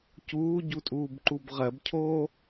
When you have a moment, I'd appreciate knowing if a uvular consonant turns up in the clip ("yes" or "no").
yes